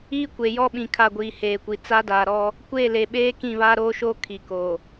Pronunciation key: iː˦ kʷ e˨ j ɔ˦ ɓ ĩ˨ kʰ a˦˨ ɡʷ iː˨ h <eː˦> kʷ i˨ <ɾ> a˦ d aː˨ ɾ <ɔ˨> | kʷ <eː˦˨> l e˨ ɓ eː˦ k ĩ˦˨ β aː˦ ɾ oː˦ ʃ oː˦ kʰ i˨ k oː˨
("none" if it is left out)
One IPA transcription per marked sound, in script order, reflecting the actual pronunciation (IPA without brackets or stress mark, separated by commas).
eː˨, t͡s, ɔ˦, eː˦˨